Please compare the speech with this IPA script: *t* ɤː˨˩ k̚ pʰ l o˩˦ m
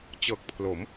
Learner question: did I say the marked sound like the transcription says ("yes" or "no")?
no